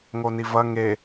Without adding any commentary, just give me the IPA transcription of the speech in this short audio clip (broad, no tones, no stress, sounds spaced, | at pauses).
ŋ o n i v ɐ ŋ e